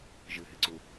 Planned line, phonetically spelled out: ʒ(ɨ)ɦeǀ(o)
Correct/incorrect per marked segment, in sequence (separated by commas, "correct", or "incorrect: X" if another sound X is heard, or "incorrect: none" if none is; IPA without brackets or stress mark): correct, incorrect: u